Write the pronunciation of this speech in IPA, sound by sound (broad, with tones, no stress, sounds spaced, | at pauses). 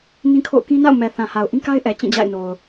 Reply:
n ĩ˦ kʰ o̰˦˨ ʊ̯ k ĩ˦ n a̰˦˨ ʊ̯ m ɛ˨ θ ã˨ h a˨ ʊ̯ ʔ ĩ˦ k a˦ ɪ̯ ʔ ɛ˨ t͡ɕ ĩ˦˨ d͡ʑ a̰˦˨ ɪ̯ n o˨ ʊ̯